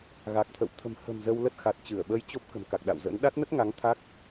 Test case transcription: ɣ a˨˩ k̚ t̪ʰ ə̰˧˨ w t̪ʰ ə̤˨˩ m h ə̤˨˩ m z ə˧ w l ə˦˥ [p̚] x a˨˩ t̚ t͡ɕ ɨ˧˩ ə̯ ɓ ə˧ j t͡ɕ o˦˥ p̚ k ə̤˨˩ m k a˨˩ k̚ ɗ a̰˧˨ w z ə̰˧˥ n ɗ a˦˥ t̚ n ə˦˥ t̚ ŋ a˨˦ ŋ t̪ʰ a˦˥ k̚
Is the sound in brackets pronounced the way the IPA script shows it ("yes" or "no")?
no